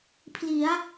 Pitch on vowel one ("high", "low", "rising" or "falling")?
rising